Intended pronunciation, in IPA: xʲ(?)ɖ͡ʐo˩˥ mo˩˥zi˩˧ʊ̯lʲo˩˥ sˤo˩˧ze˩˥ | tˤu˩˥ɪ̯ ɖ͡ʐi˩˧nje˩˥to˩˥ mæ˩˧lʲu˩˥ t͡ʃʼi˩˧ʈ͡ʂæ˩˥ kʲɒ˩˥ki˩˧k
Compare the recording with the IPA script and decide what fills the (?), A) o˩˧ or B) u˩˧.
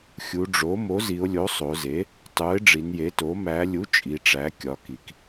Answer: B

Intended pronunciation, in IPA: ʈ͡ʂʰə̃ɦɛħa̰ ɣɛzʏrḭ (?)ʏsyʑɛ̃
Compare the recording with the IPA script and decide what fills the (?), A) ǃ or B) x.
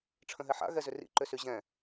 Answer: A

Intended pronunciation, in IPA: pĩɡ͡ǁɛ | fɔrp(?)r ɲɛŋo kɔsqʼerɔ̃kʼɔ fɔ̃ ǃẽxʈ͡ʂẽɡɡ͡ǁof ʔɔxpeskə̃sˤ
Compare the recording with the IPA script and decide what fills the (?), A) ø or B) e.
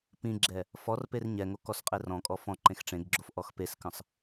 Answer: B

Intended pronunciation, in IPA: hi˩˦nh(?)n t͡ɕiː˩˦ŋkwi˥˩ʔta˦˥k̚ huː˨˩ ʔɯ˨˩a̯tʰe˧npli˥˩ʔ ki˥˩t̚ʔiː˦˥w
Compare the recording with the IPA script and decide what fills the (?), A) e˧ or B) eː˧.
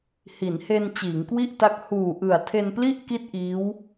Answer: A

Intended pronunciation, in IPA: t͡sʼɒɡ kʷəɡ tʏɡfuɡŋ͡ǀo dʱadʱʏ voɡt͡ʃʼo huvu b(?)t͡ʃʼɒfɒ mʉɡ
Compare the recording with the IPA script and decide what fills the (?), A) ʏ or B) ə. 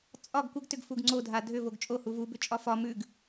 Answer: A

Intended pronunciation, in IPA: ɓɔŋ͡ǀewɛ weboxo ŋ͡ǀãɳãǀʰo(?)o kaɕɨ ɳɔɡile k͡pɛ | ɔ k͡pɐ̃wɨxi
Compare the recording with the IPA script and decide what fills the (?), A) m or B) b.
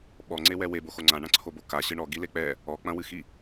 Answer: B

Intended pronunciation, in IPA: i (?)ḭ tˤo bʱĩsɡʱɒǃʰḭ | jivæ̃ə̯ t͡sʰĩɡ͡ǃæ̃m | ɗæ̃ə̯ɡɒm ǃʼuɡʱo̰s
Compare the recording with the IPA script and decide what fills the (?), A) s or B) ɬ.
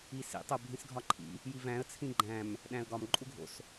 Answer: A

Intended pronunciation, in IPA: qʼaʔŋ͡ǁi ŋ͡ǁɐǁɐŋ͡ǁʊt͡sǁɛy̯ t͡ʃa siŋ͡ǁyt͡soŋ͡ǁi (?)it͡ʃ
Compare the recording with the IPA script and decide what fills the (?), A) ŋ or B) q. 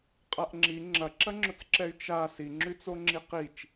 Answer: B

